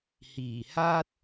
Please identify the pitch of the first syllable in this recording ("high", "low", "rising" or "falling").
low